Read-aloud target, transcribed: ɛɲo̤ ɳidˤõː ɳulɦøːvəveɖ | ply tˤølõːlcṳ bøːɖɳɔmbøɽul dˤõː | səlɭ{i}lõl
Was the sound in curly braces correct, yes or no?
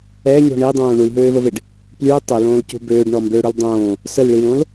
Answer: yes